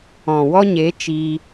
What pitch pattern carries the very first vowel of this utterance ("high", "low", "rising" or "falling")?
low